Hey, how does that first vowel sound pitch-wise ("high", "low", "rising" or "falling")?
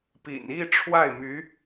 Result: low